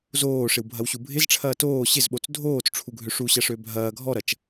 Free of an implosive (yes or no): no